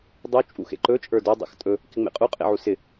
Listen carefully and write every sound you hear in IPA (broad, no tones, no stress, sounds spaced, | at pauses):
dˤ u t͡ʃʼ ṵ x ḛ ǃ ɵ t͡ʃʼ ə˞ d ɵ dˤ ḛ x tʼ ɵ | k ɪ ŋ͡m ḛ qʼ u qʼ ḛ ʕ u s ɪ